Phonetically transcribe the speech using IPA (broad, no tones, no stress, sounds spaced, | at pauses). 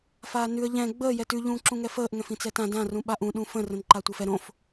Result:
f aː n ʉ ə̯ ʎ ɛ̃ ɡ͡b əː j ɛ t ʉ ʎ ũː ǁ ũ ŋ ɛ f əː ʔ ŋ ɛ̃ f ĩ t͡s ɛ t ã d ã r ũ ɓ a ʔ ũ ɗ ũ f ə̃ r ə̃ n ǃ a tʷ əː f ɛ ɾ õ f